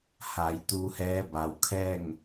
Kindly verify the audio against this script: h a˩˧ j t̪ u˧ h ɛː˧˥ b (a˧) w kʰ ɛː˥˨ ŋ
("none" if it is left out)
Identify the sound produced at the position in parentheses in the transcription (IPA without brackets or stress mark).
a˩